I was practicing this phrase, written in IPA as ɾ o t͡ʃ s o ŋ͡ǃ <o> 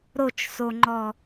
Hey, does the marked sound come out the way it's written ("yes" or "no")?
no